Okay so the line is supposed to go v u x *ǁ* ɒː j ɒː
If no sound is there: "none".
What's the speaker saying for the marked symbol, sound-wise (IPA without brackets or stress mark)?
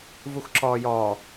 ǁ